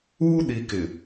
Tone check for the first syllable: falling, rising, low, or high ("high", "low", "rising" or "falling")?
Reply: high